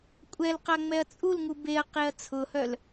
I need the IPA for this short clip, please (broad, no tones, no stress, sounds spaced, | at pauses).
kʷʼ ɛ l q a ŋ͡m ɛ ɐ̯ t͡sʼ u l ŋ u b e ɐ̯ q e ɐ̯ t͡sʰ ʊ h œ l